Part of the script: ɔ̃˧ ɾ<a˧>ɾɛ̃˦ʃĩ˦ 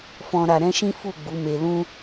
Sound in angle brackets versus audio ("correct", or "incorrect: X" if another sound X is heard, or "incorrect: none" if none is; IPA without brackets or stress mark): correct